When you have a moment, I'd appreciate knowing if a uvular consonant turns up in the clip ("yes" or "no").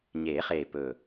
yes